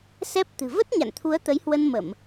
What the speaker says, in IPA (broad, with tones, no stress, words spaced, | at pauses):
sɛ˦˥p̚ t̪ɨ̤˨˩və˦˥t̚ ɲa̰˧˨nt̪ʰu˨˦ə̯ t̪ə˨˦jhwə˧nmə˧˩˨m